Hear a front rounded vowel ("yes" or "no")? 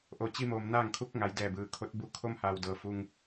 no